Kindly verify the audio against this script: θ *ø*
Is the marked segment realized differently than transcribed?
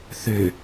no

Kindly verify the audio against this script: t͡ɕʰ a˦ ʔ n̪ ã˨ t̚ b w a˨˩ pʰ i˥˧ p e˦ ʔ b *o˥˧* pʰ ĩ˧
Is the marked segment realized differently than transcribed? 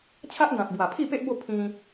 no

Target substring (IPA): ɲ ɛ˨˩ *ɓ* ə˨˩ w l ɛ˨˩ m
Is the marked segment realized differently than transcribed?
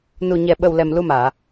no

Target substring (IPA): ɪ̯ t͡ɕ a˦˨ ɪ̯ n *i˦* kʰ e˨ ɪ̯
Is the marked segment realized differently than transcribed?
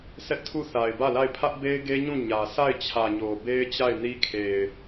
no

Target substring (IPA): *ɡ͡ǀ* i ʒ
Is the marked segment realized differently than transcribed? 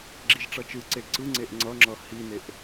yes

